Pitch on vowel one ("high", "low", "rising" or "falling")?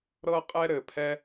high